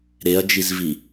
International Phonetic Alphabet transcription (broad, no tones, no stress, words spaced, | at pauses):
ɾeɐ̯d͡ʒizvi